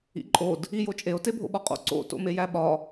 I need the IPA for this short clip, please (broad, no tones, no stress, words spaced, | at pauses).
ḭǃʼod | ijot͡ʃʼeo̯ tebʱo̰ɓɒqʼo̰ ǀo̰ to̰mejæɓɒ